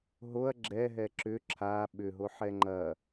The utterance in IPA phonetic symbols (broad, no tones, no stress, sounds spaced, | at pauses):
ɦ o ɐ̯ ɡ͡ǁ ɛ ɦ ɛ ǁ ʏ ǁʰ a ɓ ʏ ɦ o ħ ɛ ŋ͡ǃ ɐ